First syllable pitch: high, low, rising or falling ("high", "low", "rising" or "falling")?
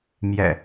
low